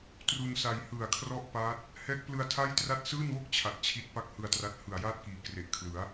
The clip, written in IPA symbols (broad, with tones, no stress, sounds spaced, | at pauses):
t r u˧ n s a˧ j h ɯ˨˩ a̯ kʰ r ɔ˥˩ ʔ p a˦˥ t̚ | h ɛː˦˥ k̚ p l ɯ˧ a̯ tʰ a˥˩ j t r a˥˩ t̚ s ɯː˥˩ n w o˥˩ k̚ t͡ɕʰ a˨˩ t̚ t͡ɕʰ i˦˥ t̚ p a˥˩ k̚ h ɯ˧ a̯ t r a˦˥ t̚ h ɯ˨˩ a̯ j aː˥˩ t̚ k iː˩˦ k r e˨˩ ʔ kʰ l ɯ˩˦ a̯